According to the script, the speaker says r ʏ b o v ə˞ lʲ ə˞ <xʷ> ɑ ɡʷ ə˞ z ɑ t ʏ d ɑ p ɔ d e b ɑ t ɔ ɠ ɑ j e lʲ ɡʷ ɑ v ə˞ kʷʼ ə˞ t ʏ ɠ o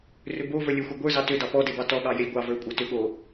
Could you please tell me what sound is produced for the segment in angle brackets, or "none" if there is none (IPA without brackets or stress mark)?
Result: xʷ